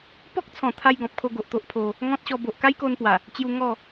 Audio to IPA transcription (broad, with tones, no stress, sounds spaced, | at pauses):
p ɔ˦ k̚ t͡sʰ ɔ̃˨˩ t̪ʰ a˧ j ɡ ɔ̃˨ p̚ kʰ o˧ ɡ o˨ ʔ t̪ o˦ ʔ pʰ o˧ | ŋ ɔ̃˦ t̚ ɕ ɔ˧ b o˨ ʔ k a˦ j k o˧ n p w a˨˩ | t͡ɕ j u˧ ŋ ɔ˥˧